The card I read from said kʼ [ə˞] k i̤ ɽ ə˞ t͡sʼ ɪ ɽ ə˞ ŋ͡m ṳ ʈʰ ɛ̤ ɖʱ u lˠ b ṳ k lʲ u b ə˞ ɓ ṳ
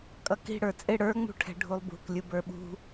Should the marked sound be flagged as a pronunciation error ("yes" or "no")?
yes